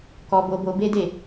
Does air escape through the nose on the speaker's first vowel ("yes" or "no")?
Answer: no